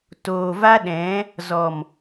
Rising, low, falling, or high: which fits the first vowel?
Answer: low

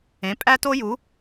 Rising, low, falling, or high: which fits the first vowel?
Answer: rising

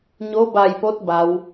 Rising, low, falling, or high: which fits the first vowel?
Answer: rising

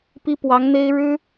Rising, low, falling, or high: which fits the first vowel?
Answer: high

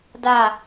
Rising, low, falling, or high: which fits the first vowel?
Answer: falling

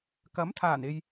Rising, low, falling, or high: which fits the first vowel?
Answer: rising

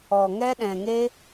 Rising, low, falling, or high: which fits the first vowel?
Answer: low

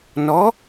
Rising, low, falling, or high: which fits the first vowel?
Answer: rising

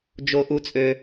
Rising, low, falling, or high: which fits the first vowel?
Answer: high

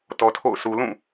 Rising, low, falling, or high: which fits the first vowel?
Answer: low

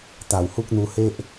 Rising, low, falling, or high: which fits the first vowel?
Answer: low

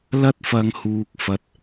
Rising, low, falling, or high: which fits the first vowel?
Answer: high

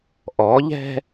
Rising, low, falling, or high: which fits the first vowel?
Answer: rising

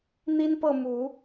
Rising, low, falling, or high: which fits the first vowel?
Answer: high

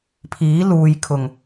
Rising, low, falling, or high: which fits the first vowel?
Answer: rising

